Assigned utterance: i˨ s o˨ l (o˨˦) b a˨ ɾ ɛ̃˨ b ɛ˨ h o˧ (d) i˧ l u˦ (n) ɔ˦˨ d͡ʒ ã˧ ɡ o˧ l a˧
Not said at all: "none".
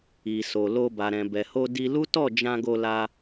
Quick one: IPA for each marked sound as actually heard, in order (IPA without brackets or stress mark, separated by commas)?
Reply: o˧, d, t